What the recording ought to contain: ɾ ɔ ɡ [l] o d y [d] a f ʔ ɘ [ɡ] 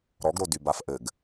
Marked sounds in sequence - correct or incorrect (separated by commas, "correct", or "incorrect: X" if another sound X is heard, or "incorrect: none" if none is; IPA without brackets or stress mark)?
incorrect: ɾ, incorrect: b, correct